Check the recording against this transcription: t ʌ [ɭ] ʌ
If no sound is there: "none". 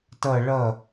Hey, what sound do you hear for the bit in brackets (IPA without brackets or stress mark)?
ɭ